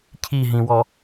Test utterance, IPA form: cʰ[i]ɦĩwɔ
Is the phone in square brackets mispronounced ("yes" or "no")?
no